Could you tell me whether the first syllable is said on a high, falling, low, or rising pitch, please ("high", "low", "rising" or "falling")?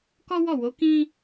high